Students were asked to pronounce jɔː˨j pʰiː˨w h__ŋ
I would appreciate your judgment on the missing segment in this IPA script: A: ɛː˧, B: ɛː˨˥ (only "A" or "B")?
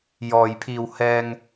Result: A